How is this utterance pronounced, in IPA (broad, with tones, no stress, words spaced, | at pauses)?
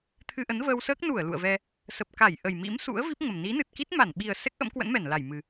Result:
t̪ʰɨ˧ʔə˨˦nvəː˧wsəː˦˥k̚ nu˧˩ə̯ lṵ˧˨ə̯vɛ˧ | sə˨˩p̚ka˧˩j ʔə˨˩jmḭ˧˥msṵ˧˥ə̯ vi˦˥p̚ ŋə˨˩m ni˨˦nɨ˨˩t̚ki˦˥t̚ ma˧˩nɓi˨˩ə̯ sɛ˦˥k̚ʔə̰˧˥mkwə̰˧˥nmɛ˧˩n la˧˩jmɨ˨˩